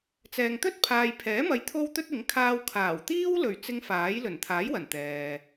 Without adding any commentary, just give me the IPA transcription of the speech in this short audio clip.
t͡s ɛː˨ ŋ t̪ ɵ˥ t̚ pʰ aː˨ j pʰ ɛː˨˥ m ɐ˨˧ j t̪ʰ o˥ w t̪ ɵ˥ t̚ ɪ˨˥ ŋ kʰ aː˧ w kʰ aː˨˩ w t̪ iː˥ w l ɵ˨˩ ɥ t͡s ɪ˨˧ ŋ f aː˨˥ j l ɵ˨˩ n t̪ʰ aː˨˥ j w ɐ˨˩ n t̪ ɛː˨

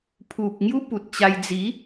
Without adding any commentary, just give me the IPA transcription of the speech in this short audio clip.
pʰ u˨ p̚ ŋ j u˦ p u˨ t̚ t͡ɕ a˧ j d͡z i˨˦

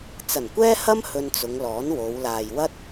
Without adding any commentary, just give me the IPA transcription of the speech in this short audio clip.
t͡s ɐ˨˩ n kʷ ɛː˥ h ɐ˥ m h ɵ˧ n t͡s ʊ˨˧ ŋ l ɔː˨˥ n w o˨˧ w l aː˨ j w ɐ˥ t̚

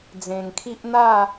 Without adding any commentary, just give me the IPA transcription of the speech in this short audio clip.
d͡z ẽ˨˩ ŋ kʰ i˦ ʔ n̪ a˥˧

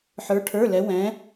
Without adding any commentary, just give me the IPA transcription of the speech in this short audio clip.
ħ ə˞˧˥ ʈʰ ə˞˧˥˧ l ɛ˧˥ w ɛ̃˧˥

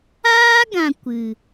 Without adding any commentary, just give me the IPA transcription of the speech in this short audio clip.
aː˦ ɡ ã˨ kʷ ɨ˨

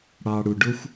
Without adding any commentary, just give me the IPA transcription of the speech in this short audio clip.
ɽ ɑ˨ ɽ u˨ ɖ ʊ˦ xʷ

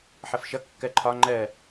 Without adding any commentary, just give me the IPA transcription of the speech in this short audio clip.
ħ ʌ f ʃ ʌ kː ɜ ǃʰ ɒ ŋ͡ǃ ɜ

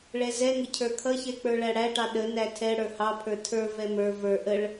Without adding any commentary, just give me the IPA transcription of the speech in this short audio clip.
ɭ ɛ z ɛ ŋ ə cʰ ə˞ kʰ ʌ ç ɛ k͡p ə˞ ɭ æ ɽ æ ʈ ɑ ɗ ə n æ tʰ ɛ ɽ ə˞ h ɑ pʰ ə˞ tʰ ə˞ v ɛ m ə˞ v ə˞ ʔ ə ɭ

